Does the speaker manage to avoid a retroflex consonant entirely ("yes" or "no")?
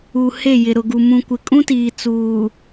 yes